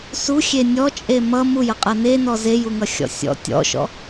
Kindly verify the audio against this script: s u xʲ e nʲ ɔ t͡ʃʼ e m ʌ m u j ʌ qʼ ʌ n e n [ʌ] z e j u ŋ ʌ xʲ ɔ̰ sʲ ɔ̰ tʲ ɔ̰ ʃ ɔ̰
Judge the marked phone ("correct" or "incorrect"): incorrect